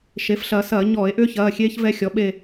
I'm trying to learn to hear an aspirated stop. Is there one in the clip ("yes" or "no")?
no